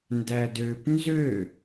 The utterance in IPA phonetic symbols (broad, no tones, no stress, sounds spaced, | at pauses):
n d æ d ø p n z ø